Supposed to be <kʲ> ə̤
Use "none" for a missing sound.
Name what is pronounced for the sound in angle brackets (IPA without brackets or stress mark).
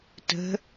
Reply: t